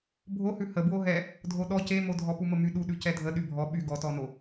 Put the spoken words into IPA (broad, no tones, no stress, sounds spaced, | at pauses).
bʱ o h ʉ h ə b w o ɦ ɛ | dʱ o ɗ ɔ c e m o dʱ ɔ p u m ə m y ɗ u ɗ ʉ c ɛ dʱ ə ɗ y bʱ ɔ ɓ y ɡ ɔ t ɔ n o